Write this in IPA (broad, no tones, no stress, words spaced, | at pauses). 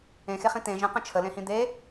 ẽxeχĩ t̪ẽ ʒə̃qə̃ t͡ʃʰəlẽhĩ d̪e